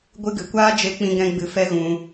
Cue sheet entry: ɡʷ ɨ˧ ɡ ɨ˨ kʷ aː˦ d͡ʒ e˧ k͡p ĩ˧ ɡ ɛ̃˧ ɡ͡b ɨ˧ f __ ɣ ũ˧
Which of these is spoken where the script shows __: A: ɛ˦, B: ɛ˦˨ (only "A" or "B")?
A